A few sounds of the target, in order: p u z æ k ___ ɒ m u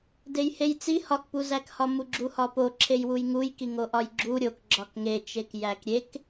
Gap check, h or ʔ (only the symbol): h